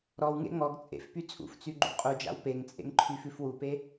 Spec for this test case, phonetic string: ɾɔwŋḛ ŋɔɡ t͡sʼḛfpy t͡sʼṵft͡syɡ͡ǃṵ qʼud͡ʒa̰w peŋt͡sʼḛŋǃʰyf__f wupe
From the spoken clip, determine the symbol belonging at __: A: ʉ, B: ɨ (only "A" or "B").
A